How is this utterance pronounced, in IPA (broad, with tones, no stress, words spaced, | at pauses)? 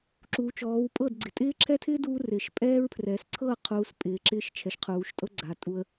ǁuː˨t͡ʃɔː˨˦wpʼɤ˦˨dɡ͡ǀɪ˨ tʼɪː˦ǁʰɛ˦tʰɪː˦ duː˦rɪː˨ʃ pʼɛː˦ɹpʰrɛː˨s ǀʰɤ˦˨qʰuː˨s pʼɪː˨˦ǁɪː˦ʃt͡ʃʰɛ˨ʃ qʰuː˨ʃtʼɤ˦ɡ͡ǀa˨ tʼu˦ə̯